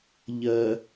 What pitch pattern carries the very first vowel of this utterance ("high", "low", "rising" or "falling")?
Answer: low